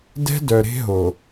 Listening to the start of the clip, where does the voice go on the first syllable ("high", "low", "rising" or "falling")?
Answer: high